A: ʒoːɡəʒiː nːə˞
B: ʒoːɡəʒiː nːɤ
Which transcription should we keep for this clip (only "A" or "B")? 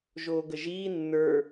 A